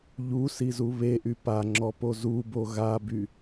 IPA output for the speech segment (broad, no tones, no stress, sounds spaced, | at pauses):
ʎ u s i z u β e ʔ y p a ŋ͡ǁ ɔ p o z u b o ɣ a b y